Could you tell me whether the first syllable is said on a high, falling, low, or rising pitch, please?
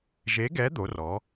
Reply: rising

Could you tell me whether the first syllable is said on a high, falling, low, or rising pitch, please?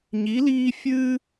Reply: rising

